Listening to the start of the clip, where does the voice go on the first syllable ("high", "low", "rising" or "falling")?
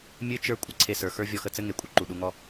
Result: high